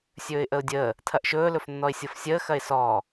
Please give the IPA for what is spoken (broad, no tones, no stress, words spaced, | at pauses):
sʲɵːɪ̯ʔəʊ̯dʲəː | tʰɐʔʃɵː lɵfnːɔɪ̯sʲɤfsʲəː xɐɪ̯sɔː